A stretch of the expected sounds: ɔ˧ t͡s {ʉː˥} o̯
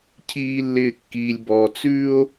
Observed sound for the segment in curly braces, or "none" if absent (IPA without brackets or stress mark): ʉː˥